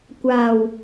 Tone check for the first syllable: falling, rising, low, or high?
low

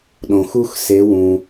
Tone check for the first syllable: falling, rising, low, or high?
low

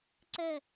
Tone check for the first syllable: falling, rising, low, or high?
falling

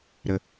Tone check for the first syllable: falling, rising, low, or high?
low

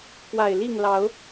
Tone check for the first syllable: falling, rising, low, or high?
low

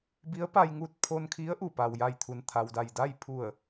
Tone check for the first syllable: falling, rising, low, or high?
rising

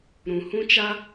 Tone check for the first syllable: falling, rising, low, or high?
low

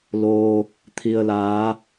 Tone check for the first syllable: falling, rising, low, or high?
low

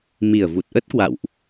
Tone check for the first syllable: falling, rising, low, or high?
low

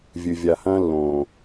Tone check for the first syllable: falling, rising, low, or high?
low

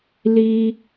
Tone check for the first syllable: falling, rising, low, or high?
high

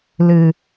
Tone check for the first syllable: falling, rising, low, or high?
low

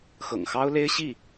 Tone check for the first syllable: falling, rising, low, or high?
low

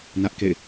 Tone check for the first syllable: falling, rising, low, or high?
high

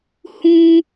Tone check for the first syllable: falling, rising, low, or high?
high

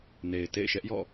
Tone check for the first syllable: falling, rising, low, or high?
low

